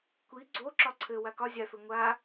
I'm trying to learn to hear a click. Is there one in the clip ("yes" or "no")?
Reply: yes